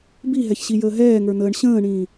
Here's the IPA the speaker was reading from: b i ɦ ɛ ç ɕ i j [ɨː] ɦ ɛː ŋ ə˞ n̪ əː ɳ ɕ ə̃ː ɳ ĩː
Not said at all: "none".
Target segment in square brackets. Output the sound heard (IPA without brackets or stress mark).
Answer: əː